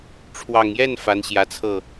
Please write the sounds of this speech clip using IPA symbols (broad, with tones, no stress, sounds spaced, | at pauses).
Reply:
ʈ͡ʂʰ w ɑ˨˩ ŋ j ɛ˥˩ n f a˧˥ n ɕ j ä˧˥ t͡sʰ ɤ˥˩